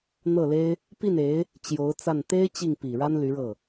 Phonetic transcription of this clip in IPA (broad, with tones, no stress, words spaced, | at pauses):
n̪ɤ˥˩le˥ɪ̯ | pi˥˩ne˧˥ɪ̯ | t͡ɕjo˧˥ʊ̯t͡sa˥˩n t̪e˥ɪ̯ t͡ɕi˥˩ŋpi˨˩ɻa˥n ly˧˥ɻɤ˥˩